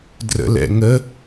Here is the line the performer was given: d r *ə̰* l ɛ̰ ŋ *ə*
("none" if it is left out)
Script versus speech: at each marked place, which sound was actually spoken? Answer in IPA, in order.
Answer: ə̰, ə

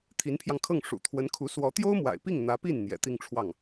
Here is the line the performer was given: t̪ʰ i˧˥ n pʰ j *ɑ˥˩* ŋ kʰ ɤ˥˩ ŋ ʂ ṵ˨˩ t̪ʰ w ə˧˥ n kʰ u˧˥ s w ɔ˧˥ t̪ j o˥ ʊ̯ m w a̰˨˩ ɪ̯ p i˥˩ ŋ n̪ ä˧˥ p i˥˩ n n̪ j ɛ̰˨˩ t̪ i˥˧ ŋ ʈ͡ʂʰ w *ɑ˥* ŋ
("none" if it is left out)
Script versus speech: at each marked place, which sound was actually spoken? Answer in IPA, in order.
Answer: ɑ˧, ɑ˥˩

